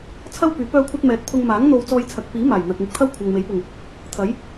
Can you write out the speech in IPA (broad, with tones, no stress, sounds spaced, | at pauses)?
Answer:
t͡sʰ ɐ˥ w p yː˨˥ p œː˥ kʷʰ ɐ˥ t̚ m ɛː˨˥ t̚ pʰ ʊ˧ ŋ m aː˨˥ ŋ n̪ o˧ w t͡s ɔː˧ j t͡sʰ ɐ˨ k̚ p iː˨˥ m aː˨˩ j n̪ ɐ˨ k̚ m ɪ˧ k̚ t̪ʰ ɐ˥ w kʷʰ ɐ˨ ŋ m e˨˥ j p ʊ˨˩ ŋ | t̪ʰ ɐ˨˥ j